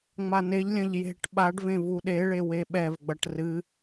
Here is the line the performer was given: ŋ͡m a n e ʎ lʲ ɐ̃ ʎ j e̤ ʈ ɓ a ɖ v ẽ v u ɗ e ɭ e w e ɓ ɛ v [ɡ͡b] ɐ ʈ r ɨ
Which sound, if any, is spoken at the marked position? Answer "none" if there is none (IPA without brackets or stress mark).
ɡ͡b